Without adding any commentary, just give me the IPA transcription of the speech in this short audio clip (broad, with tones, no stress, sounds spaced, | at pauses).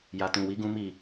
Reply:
j a˨ t ũ˨ w i˨˦ ɡ ũ˦ m i˦˨